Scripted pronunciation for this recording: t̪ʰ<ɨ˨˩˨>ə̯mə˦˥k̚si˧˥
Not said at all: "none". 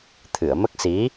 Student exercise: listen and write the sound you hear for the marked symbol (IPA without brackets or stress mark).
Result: ɨ˨˩˨